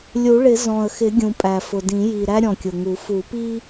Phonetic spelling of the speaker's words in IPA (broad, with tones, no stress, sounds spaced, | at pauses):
lʲ u˨˩˦ ɭ ɪ˨˩˦ z ɔ̃˨˩ ə̯ x ɪ˨˩˦ ɡʲ ũ˨˩ pʼ æ˨˩ f ʊ˨˩ d ĩ˨˩˦ j i˨˩ ɾ æ˦ ɾʲ ɔ̃˨˩ kʲ ʊ˨˩ ŋ u˨˩˦ f u˨˩˦ p i˦